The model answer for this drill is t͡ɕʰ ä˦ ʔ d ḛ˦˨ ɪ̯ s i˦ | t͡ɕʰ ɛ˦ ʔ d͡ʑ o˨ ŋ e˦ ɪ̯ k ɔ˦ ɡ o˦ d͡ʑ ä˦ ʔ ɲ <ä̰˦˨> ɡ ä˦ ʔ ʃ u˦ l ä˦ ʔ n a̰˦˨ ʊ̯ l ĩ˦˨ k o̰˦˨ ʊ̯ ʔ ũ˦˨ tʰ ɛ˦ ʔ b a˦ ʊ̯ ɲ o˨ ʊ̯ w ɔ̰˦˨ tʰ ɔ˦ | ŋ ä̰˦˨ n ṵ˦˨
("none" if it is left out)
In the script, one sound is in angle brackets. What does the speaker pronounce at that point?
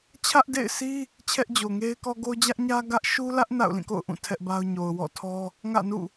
ä˦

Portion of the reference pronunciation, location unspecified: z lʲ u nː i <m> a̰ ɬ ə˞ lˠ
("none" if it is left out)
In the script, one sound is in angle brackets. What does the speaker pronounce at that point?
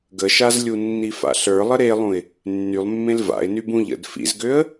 f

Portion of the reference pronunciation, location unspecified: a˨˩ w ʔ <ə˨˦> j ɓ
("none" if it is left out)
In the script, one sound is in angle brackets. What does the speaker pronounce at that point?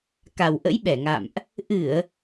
ə̰˧˥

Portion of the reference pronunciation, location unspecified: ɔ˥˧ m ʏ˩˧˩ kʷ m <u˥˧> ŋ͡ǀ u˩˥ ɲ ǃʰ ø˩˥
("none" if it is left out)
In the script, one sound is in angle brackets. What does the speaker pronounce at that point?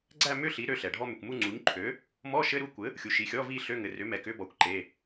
u˥˧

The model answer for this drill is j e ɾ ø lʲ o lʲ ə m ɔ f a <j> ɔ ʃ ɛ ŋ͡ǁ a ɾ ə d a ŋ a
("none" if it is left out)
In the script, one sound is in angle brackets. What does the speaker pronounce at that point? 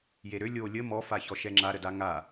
ç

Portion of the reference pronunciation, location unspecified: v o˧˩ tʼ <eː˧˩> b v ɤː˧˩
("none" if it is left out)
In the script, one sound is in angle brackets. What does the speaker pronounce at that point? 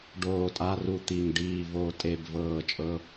e˧˩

